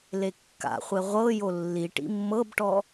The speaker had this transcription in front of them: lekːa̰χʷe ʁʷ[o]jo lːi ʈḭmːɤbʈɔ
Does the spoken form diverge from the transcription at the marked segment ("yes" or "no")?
yes